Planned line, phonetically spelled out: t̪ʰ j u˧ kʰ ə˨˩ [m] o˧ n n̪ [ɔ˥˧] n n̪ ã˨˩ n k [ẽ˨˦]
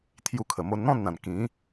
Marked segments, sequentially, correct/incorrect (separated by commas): correct, incorrect, incorrect